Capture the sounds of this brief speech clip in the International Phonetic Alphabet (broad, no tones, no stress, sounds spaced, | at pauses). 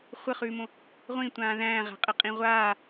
χʷ ə χ ʉː m õ | ʁʷ ĩ tʷ ãː ð æ̃ː ʁ æ̤ qʼ ə qʼ ĩ ʁʷ aː